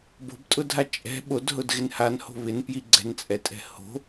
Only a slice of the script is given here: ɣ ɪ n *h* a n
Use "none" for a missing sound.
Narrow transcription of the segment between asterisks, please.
h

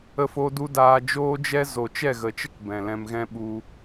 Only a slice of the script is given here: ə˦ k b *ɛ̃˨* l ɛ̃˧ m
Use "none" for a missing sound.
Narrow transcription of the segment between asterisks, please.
ɛ̃˨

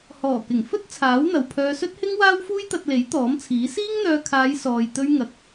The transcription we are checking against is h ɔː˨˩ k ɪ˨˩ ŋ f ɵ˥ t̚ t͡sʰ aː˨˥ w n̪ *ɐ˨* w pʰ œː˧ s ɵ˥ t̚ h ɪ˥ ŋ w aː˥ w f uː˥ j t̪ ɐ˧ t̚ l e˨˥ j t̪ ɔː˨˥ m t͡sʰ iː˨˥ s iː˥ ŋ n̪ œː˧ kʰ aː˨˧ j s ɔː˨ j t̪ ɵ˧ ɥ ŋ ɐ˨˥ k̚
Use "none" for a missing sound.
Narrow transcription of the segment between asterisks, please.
ɐ˨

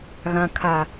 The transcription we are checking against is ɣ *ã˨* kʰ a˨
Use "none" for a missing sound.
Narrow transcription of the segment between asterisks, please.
ã˨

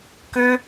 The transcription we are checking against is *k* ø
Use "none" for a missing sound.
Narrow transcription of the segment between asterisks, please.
k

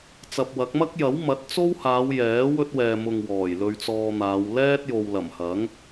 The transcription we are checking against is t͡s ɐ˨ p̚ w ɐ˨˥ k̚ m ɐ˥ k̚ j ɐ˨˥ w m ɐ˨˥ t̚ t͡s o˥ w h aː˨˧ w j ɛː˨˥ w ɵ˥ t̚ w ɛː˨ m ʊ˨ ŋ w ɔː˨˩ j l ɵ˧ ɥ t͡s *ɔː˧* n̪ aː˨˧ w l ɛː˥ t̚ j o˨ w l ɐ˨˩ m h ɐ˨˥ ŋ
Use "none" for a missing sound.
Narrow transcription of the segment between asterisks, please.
ɔː˧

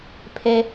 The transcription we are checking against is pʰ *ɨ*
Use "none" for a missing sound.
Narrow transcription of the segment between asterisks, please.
e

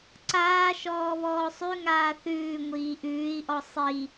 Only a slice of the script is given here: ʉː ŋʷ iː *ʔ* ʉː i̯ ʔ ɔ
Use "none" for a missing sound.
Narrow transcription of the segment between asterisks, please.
ʔ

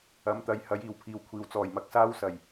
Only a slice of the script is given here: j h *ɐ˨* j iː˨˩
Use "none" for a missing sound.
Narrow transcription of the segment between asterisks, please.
ɐ˨˥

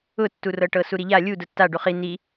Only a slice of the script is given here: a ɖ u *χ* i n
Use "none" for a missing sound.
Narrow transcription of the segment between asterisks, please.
χ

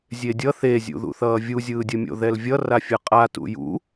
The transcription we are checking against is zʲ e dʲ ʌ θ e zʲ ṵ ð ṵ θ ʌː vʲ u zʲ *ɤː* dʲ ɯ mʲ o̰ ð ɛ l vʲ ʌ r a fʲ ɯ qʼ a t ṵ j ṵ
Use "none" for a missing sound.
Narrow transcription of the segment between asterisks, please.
ɯː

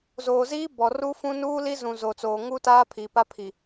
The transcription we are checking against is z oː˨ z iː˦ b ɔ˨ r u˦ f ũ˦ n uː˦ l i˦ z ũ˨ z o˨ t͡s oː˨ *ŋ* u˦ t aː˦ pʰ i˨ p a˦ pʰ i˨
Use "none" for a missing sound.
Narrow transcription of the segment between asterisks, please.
ŋ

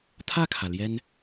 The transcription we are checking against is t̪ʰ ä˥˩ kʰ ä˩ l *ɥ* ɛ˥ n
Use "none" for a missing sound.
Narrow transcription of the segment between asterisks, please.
j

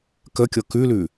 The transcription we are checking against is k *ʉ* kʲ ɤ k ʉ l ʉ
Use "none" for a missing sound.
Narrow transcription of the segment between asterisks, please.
ə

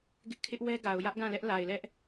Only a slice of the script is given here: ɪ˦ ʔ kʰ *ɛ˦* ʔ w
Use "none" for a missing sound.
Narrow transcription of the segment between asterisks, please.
ɪ˦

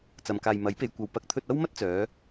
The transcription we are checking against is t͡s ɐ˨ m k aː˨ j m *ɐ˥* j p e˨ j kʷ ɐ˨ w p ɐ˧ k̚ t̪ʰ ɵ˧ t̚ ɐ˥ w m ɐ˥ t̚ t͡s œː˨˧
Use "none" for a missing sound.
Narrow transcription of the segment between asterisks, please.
ɐ˨˥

